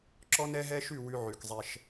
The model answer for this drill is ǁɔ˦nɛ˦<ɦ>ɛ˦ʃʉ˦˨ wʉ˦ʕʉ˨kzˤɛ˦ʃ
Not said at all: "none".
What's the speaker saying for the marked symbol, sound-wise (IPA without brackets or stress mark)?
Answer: ɦ